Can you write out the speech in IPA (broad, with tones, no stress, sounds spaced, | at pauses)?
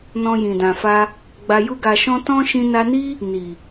n ɔ̃˧ j ĩ˨ d ã˨ f a˧ | ɡ͡b a˧ j u˦ ɡ a˧ ʃ ɔ̃˦ t ɔ̃˦ ʃ ĩ˧ n a˧ n i˦ | n i˨